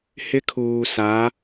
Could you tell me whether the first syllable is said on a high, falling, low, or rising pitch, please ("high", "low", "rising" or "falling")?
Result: high